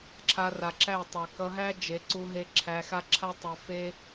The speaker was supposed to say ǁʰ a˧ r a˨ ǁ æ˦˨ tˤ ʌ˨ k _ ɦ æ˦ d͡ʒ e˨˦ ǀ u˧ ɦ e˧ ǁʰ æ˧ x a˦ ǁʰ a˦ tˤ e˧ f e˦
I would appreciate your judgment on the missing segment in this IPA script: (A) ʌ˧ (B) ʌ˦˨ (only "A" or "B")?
A